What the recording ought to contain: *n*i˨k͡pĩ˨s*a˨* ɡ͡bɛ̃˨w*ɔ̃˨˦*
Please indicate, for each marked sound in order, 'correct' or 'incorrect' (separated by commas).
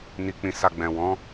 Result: correct, correct, correct